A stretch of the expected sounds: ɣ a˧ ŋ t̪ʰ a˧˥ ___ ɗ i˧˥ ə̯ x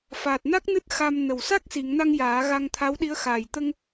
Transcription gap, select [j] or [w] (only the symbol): w